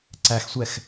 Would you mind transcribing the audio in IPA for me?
ǀ æ x sʷ ɛ x

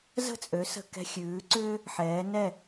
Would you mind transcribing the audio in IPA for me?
z ə̤˥˩ t͡sʼ ø˩˥ s ə̤˧ k ɛ̤˧ xʲ ʉː˩˥ ǀ ʏː˥ | ħ ɛː˩˥ n ɛ˥˩

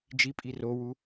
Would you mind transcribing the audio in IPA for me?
d͡ʒ i pʼ i r o w u

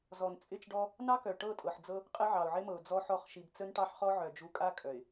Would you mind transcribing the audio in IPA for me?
z ɔ˨ n t͡sʼ ɪ˦˨ t͡ʃ ɖ ɔ˦ | n ɑ˦ k œ˨ ʈ ɤ˦˨ tʼ ɤ˨ ħ d͡z ɤ˦ | qʼ ɪ˦ ʕ ɑ˨ ʊ̯ ʕ ɪ˦ m ɤ˨ ʊ̯ d͡z ɔ˦ ħ ɔ˦˨ χ ʃ i˨ b t͡s ə˦ n ʈ ɑ˦ ħ χ ɔ˦ ʕ œ˨ d͡ʒ u˨˦ kʼ a˦ kʼ œ˨ ɪ̯

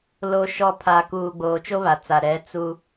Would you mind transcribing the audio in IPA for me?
l o˨ ʃ ɔ˨ pʰ a˨ k uː˨ ɡ͡b oː˨ t͡ʃ o˦ β a˨ t͡s a˨ ɾ ɛ˨˦ t͡s u˦

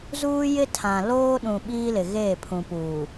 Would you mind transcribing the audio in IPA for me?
z uː˦ j ɪ˦ tʰ ã˨ l oː˦ ɗ ũ˨ ɓ iː˦ l ɪ˨ ɣ eː˦˨ pʰ ũ˨ p uː˨

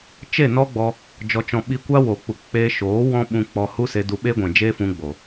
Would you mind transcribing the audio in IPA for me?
t͡ʃ e˦˨ n ɔ˦ ɡ͡b ɔ˧ | d͡ʒ ɔ˧ t͡ʃ ɔ̃˧ ɓ i˧ kʷ a˦ w o˨ k͡p u˨ k͡p eː˧ ʃ oː˨˦ w ɔ̃˦ ɓ ũ˧ k͡p ɔ˧ h u˦ s e˧ d u˧ ɓ e˦ ɡʷ ɛ̃˨ d͡ʒ eː˦ f ũ˧ ɡ͡b o˨

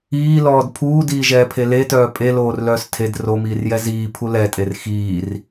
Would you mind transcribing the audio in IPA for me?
iː l ɔː d pʰ uː d iː ʒ ɛː pʰ e l e t œː pʼ e l oː r l œː s tʰ e d r o m iː r j ɛ z iː pʰ u l ɛ tʼ e r x iː r

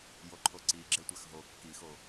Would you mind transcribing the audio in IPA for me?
j o ǃʰ o ǀ i ɡ͡ǁ e tʷ a x ɦ o kː i x o

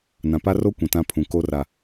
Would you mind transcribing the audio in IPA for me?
n ã˨ p a˦ r o˦ kʷ ĩ˨ t ã˦ pʰ ũ˨ k o˦ r a˨

